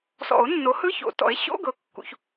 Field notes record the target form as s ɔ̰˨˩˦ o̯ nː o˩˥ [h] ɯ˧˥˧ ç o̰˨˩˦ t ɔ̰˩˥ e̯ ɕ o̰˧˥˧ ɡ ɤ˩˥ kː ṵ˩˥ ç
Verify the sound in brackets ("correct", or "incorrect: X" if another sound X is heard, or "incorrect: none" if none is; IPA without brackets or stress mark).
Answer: correct